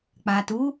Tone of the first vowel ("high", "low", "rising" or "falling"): low